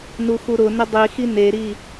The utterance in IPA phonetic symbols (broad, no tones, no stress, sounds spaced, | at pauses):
n u x u ɾ ʊ n ɪ dˤ i x i n e ɾ i